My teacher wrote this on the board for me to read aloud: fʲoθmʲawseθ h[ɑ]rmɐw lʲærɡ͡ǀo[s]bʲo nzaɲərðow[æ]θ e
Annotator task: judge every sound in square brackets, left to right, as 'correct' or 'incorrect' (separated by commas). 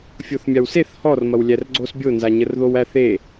incorrect, correct, correct